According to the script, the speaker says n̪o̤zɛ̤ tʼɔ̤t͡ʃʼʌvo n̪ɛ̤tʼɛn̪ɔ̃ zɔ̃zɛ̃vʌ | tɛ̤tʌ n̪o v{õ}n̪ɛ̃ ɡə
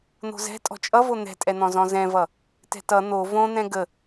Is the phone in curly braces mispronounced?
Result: no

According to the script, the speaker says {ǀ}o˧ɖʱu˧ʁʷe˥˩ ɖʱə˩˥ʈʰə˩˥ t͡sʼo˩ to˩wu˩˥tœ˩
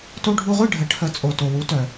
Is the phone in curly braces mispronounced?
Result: yes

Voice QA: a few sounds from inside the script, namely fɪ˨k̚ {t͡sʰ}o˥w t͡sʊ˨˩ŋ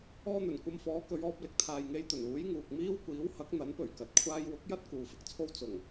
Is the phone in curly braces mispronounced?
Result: no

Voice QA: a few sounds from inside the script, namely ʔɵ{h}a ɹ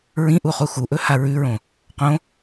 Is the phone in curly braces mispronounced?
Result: no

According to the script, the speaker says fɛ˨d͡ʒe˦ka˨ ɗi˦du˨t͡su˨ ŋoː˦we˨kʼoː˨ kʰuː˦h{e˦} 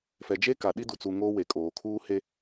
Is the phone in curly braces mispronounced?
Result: no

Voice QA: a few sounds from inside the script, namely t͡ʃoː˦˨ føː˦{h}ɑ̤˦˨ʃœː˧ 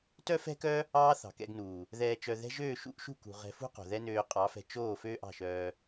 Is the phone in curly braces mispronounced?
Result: yes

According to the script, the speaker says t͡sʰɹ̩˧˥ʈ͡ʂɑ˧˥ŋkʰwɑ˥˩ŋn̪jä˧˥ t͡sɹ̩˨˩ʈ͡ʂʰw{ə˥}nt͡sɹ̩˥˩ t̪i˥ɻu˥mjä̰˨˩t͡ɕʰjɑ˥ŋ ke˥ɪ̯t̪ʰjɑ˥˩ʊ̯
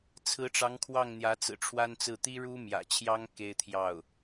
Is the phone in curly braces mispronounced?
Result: yes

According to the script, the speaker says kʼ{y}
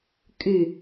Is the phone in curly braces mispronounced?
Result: no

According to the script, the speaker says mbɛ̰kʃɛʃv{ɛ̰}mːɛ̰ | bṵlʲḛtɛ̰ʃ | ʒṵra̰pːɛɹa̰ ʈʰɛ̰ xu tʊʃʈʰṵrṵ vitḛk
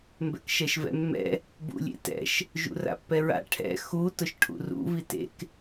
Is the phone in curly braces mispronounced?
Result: no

